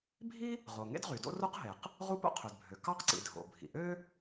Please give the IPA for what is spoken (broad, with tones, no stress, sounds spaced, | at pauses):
bʱ i˥ | ʁ o˩ ŋ ḛ˥ d ʁ y˩ d o̰˥ r o˥ q ɦ e˩ q | ʁ u˥ p o̰˥ qʰ ø˩ d bʱ ø˩ k ɑ˥ q ǀ ḭ˩ dʱ o̰˩ bʱ ḭ˩ ʔ ø˥